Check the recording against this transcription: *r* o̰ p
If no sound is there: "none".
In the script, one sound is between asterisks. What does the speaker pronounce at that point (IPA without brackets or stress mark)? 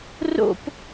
r